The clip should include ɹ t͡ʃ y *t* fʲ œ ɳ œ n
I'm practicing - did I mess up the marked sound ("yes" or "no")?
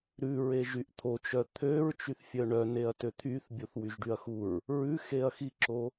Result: yes